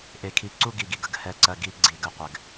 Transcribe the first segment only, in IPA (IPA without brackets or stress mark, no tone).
ʔ